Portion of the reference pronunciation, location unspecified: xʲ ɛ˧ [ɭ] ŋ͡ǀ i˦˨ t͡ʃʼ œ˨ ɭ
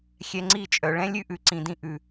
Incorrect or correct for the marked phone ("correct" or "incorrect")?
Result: incorrect